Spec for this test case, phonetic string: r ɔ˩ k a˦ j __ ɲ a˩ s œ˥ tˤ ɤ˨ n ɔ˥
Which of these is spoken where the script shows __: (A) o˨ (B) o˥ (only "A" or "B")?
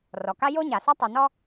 B